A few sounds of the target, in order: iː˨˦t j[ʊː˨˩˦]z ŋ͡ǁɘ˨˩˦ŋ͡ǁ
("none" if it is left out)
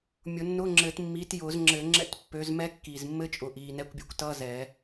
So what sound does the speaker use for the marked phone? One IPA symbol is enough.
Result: ʊː˨˩˦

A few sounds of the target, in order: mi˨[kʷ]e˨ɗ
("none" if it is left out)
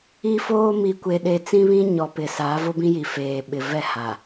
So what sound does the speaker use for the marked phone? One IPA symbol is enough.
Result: kʷ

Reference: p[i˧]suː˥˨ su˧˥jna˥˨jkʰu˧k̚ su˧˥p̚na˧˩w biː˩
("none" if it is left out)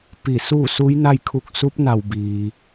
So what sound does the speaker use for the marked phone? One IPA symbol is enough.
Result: i˧˩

